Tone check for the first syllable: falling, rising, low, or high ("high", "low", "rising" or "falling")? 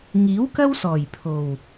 rising